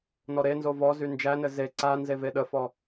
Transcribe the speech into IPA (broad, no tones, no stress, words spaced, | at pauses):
nɔɾenzo vɔzy nd͡ʒænɘ ze ǀa nzeveɗəfɔ